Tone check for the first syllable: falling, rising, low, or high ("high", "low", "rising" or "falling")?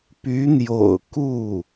rising